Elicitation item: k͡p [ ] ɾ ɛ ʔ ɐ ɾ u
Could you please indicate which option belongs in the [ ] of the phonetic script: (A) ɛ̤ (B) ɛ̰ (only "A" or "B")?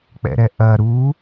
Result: B